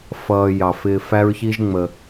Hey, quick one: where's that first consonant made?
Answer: lips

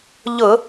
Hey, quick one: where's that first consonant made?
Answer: palate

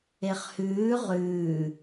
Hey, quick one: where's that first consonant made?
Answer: uvula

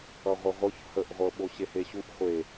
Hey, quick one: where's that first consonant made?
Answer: uvula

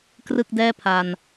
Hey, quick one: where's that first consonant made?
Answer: velum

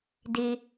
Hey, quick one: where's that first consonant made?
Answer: tongue tip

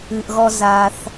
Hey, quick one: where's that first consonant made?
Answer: throat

